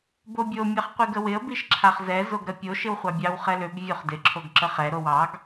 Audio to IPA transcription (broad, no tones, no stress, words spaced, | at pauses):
bobʲo mʲɑχqʷiɡəwɪə̯ biʃǁʰaχzɛ zoɡɾəpʲo ʃɪwχʷɑbʲɑw χɛløb vʲoχdɪ ǁʰoɡǁəχɛ ɾowɑɡ